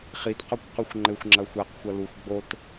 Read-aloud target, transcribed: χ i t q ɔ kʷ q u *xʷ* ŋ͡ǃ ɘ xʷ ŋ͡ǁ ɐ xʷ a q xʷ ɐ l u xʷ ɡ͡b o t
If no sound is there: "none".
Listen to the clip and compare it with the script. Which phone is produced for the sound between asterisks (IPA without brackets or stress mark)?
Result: xʷ